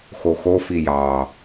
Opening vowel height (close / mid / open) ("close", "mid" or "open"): mid